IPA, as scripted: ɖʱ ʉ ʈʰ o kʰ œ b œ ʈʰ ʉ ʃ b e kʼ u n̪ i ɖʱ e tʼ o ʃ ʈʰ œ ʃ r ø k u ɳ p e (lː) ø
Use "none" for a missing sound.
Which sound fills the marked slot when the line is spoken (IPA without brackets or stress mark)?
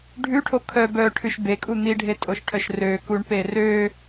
r